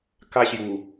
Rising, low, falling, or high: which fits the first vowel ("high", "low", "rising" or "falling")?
high